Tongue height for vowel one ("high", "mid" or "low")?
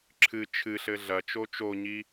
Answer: high